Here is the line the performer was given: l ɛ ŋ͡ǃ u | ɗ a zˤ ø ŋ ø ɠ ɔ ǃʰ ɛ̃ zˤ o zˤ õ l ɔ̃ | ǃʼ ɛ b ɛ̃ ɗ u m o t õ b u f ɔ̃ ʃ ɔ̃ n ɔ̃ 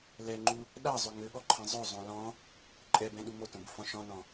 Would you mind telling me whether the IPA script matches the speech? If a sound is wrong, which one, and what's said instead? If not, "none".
none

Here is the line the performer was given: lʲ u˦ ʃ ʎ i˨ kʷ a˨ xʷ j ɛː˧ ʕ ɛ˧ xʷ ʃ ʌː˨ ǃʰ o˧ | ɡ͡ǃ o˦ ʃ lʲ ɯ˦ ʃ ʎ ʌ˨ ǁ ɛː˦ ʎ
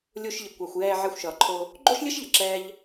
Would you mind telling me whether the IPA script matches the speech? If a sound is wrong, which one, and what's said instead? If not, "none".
u˦ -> u˧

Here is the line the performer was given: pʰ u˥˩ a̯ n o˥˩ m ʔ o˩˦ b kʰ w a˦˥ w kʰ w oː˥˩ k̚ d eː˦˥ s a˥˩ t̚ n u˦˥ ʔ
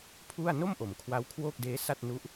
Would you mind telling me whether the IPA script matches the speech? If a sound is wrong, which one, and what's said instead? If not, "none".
b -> m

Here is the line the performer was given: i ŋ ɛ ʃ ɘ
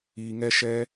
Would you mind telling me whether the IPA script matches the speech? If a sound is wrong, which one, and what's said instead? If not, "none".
ɘ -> ɛ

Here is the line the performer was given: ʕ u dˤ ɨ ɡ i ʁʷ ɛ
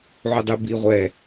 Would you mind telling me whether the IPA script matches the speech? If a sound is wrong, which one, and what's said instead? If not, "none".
ɡ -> b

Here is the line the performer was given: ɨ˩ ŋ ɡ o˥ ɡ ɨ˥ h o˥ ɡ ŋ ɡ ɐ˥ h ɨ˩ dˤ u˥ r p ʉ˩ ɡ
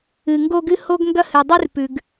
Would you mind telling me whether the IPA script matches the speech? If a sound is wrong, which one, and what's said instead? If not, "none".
none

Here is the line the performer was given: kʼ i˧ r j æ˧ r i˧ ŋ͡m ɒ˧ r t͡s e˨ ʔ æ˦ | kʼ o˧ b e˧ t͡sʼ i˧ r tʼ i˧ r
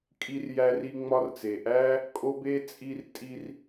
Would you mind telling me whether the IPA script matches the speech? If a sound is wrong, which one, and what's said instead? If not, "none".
none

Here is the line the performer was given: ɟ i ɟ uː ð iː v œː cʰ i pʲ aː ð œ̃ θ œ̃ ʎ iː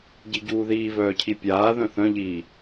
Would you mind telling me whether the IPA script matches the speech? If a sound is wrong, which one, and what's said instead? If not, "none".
none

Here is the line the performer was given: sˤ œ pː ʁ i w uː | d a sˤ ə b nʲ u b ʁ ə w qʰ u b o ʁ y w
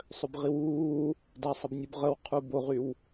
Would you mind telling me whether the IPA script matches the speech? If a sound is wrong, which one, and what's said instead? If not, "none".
pː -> b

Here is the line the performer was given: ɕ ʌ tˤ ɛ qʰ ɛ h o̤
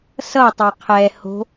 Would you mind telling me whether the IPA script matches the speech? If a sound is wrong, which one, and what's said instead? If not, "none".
ɕ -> s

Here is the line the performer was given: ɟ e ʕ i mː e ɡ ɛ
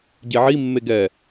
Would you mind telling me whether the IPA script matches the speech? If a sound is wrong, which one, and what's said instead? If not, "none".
none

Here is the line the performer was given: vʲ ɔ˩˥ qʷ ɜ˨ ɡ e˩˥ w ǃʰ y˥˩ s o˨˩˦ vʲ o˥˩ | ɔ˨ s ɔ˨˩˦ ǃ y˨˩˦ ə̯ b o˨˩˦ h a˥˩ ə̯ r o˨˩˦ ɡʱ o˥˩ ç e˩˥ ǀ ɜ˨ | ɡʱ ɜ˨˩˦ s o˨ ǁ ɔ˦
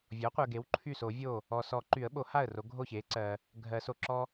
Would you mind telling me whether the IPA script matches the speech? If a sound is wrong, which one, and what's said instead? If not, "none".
b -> ɓ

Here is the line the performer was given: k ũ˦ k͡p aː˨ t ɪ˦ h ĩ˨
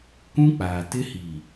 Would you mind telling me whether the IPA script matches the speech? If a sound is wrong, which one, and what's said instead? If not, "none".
ĩ˨ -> i˨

